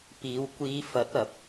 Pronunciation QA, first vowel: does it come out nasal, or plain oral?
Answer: oral